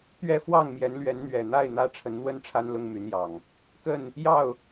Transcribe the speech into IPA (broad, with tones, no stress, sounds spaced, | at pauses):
t̪ ɥ ɛ˥˨ f w ɑ˥˨ ŋ m j ɛ˨˦ n l ɥ ɛ˨˦ n n̪ ɥ ɛ˨˩ n̪ a˥˨ ɪ̯ n̪ ä˦ ʈ͡ʂʰ ə˨˦ n n̪ w ə˥˨ n ʈ͡ʂʰ a˦ n l ʊ˦ ŋ m y˨˦ n j ɑ˨˩ ŋ | k ə˥˨ n | j ɑ˥˨ ʊ̯